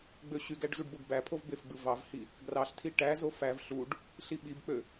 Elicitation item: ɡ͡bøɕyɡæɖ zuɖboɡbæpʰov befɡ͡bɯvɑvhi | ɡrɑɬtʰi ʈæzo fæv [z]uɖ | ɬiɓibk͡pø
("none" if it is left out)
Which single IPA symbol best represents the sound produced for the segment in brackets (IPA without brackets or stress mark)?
ɬ